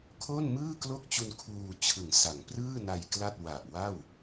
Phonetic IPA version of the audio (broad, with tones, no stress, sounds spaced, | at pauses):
kʰ oː˥˩ n m ɯː˥˩ k l o˥˩ k̚ t͡ɕ u˧ n kʰ uː˧ t͡ɕʰ ɯ˨˩ ŋ s a˩˦ ŋ p r ɯː˥˩ n a˧ j k l a˥˩ t̚ w a˨˩ ʔ w a˥˩ w